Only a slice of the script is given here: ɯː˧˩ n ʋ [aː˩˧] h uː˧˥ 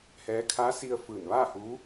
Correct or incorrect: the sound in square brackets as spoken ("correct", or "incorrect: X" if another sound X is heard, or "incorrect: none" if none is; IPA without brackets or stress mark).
incorrect: aː˥˨